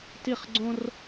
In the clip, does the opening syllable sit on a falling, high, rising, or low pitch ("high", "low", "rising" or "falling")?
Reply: falling